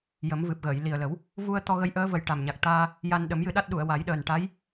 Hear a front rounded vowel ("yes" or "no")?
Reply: no